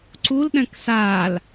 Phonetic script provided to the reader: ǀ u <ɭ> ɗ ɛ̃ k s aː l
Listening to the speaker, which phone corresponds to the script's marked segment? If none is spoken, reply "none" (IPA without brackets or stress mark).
l